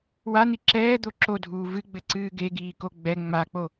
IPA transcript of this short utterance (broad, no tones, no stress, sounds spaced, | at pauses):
w a n̪ i ǁ ɛː d̪ o ǁ o dʱ uː v ɨ ɡ͡b ɘ ǀ ɨː ɡ e ɡ iː k o ɡ͡b ɛ ŋ͡m a k͡p o